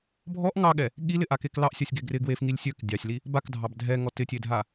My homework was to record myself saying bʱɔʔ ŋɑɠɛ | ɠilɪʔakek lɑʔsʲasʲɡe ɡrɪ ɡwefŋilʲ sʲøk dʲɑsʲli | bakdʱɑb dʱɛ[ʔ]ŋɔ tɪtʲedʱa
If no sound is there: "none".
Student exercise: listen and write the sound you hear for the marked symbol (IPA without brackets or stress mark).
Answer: none